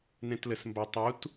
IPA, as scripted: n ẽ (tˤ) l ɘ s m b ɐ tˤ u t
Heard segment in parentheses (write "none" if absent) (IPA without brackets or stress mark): t